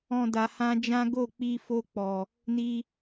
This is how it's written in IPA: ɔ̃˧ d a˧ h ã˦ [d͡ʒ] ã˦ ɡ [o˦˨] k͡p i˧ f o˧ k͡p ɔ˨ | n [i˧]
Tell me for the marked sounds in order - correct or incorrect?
correct, correct, correct

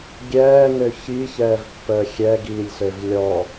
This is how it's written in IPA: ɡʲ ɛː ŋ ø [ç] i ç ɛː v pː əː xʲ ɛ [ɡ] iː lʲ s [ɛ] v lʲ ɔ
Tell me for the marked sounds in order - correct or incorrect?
correct, correct, incorrect: ø

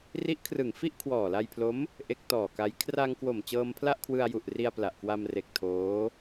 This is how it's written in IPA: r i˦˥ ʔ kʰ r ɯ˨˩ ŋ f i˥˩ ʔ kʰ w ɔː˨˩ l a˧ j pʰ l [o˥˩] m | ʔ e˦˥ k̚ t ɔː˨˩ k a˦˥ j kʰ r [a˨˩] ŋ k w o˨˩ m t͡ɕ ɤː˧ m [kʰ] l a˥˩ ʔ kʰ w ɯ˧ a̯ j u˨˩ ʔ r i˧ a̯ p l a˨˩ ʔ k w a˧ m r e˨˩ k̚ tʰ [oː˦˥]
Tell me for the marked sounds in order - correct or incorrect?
incorrect: o˦˥, incorrect: a˧, incorrect: pʰ, correct

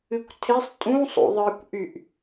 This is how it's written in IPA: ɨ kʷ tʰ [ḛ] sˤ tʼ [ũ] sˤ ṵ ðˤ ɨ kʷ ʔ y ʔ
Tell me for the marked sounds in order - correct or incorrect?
incorrect: e, correct

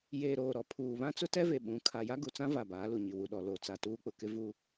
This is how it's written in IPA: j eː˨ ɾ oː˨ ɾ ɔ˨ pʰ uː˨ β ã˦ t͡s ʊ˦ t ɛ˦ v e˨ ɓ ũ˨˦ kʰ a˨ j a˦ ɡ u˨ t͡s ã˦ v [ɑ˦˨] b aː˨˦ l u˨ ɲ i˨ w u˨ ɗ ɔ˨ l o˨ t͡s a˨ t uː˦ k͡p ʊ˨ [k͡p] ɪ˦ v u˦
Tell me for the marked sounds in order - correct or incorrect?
incorrect: a˦˨, incorrect: k

